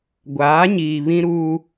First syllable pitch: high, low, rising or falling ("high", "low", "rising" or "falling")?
rising